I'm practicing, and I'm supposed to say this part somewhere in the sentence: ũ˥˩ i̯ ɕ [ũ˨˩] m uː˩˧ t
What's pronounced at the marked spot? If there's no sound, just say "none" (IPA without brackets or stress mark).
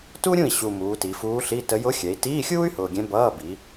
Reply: u˨˩